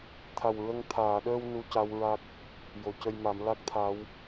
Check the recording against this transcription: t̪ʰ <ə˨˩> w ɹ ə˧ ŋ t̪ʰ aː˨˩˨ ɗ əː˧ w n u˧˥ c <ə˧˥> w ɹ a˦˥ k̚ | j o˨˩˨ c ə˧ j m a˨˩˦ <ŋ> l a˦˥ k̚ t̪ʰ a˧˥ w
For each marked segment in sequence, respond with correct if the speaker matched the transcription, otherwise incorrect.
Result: incorrect: a˨˩, incorrect: a˧˥, incorrect: m

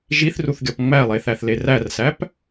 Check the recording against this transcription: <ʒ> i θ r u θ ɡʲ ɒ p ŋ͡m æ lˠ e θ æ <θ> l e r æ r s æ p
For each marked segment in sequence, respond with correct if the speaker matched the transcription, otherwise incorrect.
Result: correct, correct

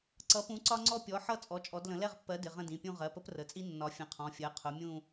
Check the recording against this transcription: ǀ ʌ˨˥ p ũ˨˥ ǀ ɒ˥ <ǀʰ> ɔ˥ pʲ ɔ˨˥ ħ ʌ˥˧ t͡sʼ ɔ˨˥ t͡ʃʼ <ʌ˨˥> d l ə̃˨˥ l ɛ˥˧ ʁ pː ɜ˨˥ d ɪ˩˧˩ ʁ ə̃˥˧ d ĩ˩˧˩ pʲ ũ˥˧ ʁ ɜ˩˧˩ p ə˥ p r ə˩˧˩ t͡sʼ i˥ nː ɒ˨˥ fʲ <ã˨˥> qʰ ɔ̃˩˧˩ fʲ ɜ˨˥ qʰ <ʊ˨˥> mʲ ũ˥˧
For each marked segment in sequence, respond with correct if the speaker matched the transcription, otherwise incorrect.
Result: incorrect: ŋ͡ǀ, incorrect: ɔ˨˥, incorrect: ə̃˨˥, correct

